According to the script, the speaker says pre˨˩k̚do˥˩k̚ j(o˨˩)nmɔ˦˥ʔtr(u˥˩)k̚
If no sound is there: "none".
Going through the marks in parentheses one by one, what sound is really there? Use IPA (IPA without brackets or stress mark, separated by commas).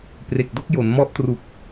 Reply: o˩˦, u˨˩